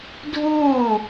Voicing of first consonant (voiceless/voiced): voiced